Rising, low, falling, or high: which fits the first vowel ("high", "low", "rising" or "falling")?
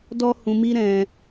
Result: high